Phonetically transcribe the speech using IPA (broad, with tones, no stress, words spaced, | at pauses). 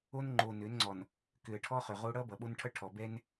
o˦n ŋ͡ǃo˨nø˨˦nŋ͡ǀɔ˨n | kø˨ə̯ʈʰɔ˦χø˨ʁo˦ ɽʌ˦bʌ˨ ɓo˦nʈʰʌ˦ ʈʰɔ˨bɛ˦n